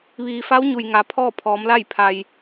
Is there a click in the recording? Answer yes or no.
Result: no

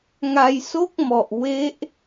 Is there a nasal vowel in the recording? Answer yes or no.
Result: no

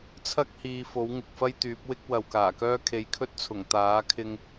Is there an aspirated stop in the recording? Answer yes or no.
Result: yes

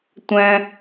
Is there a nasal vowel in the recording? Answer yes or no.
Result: yes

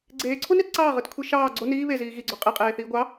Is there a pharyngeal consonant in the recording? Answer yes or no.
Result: no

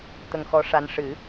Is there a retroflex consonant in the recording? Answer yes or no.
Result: yes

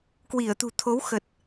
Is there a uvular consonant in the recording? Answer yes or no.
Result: no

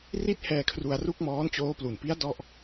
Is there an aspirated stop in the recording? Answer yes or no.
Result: yes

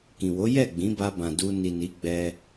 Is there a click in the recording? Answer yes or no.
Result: no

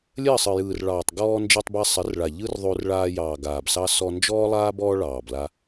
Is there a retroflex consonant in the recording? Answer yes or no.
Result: yes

